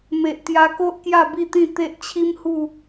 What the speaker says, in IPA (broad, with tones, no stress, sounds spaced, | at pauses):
m e˨ ʔ t̪ j a˧ k o˦ ʔ k j a˥˧ b i˥˧ t̪ ĩ˥˧ t̪ e˦ ʔ t͡ɕʰ i˦ m h u˥˧